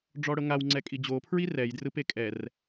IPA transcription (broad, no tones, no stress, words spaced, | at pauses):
ɖ͡ʐɔɽɤŋaw ŋ͡ǀɛkʼid͡ʑo pʰɹirɛj drɯpekʼɛr